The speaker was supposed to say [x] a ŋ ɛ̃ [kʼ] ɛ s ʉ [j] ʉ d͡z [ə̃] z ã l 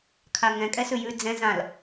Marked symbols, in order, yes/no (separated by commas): no, yes, yes, no